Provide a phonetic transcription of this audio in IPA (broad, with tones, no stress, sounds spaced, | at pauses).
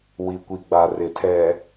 w i˨ kʷ i˨ ɡ͡b a˨ r ɪ˨ tʰ ɛ˨